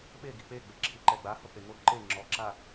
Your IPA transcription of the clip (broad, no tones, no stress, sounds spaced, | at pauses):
ɓ e ɡ i k͡p e ɡ͡b e ǁʰ i ǃ ɛ ɡ͡b a h o k͡p e ŋ o ǃ e ŋ͡ǁ ɔ ǁ a